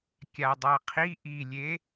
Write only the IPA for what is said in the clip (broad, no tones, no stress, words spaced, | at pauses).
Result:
kʲadˤaqʰi ʔilʲe